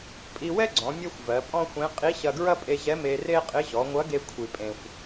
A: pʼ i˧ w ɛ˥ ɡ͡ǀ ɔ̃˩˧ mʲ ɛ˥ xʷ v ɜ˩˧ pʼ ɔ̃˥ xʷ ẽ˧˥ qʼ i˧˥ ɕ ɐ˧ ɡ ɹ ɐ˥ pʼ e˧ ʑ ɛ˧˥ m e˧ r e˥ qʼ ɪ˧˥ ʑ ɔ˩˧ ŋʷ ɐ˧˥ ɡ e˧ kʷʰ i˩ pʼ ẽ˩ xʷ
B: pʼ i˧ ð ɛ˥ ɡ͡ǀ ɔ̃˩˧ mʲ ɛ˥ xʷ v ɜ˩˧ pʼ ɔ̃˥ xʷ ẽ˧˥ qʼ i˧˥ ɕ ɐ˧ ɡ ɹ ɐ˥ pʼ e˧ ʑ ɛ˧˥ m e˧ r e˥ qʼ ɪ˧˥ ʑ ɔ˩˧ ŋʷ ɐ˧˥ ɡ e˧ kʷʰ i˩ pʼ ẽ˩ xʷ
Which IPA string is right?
A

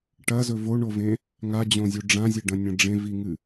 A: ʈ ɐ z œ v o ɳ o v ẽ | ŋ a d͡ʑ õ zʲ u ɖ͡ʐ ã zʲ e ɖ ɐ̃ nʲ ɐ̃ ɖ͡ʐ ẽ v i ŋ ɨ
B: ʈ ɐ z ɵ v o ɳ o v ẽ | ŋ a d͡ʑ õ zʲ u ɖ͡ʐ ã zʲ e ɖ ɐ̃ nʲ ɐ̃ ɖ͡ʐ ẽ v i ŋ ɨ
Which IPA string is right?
B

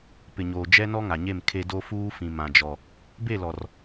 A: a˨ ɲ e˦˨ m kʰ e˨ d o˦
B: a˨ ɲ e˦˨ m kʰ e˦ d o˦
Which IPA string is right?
B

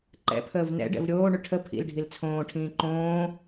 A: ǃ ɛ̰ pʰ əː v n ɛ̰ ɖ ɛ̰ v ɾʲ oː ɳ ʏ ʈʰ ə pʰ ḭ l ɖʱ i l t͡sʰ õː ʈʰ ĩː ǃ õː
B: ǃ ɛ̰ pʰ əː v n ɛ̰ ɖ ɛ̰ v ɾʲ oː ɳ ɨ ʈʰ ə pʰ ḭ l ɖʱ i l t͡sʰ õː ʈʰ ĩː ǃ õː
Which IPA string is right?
A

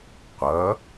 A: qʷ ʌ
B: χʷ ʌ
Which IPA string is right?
A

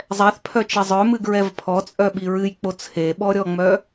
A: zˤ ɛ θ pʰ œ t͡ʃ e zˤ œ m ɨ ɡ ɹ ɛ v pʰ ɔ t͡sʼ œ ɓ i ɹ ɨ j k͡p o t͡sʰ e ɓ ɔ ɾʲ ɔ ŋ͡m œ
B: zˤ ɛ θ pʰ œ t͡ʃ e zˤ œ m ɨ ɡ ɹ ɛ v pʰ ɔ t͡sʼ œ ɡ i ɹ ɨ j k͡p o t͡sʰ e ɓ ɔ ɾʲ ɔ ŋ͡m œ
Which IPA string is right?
A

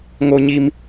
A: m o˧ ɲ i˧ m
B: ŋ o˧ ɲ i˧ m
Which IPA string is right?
B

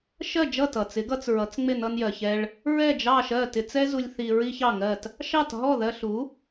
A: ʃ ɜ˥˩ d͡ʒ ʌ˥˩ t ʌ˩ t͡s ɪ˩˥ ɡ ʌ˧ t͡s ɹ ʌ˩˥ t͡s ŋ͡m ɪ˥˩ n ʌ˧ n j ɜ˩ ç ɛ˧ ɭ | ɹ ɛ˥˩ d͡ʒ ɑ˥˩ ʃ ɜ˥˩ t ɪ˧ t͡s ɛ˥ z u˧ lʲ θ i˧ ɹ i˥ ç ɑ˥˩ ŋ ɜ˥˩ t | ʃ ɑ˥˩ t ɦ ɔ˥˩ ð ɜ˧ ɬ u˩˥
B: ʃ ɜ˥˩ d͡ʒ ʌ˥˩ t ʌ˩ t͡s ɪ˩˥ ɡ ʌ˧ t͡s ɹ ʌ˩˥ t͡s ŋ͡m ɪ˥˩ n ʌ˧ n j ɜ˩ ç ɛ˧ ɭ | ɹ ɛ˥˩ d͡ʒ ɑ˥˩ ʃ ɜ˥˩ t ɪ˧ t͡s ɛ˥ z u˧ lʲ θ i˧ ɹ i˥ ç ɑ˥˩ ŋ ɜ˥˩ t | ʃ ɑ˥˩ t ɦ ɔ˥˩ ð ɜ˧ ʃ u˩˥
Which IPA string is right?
A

